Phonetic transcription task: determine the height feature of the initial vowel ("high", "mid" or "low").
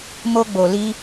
mid